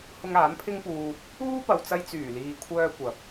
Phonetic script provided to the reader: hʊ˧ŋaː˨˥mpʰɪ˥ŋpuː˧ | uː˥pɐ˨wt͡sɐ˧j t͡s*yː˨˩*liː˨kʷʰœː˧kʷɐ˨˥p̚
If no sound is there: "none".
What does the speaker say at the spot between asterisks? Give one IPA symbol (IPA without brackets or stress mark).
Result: yː˨˩